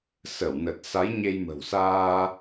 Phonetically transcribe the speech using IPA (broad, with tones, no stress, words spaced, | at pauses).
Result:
sə˧˩wnə˨˩t̚ sa˨˦jɲe˧jmə̤˨˩wsaː˧